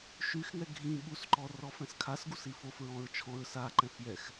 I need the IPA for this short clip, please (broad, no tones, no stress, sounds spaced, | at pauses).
ʃ y x ŋ ɛ ɡʱ ĩ ɓ u s ǃ ɔ r ɔ f ɛ̃ s kʰ a s ɡ u s i f o f ɹ ɔ̃ ɹ t͡ʃʰ ɔ̃ ɹ s a ǃ ɛ̃ f j ɛ x